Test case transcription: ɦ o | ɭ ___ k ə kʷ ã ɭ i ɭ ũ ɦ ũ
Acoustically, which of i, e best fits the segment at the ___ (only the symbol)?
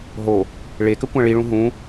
e